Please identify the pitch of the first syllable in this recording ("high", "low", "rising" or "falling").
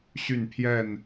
falling